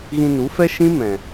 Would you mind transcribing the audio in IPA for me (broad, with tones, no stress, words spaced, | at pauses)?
ɣĩ˧nu˨˦fɛ˦ ʃĩ˦mɛ̃˨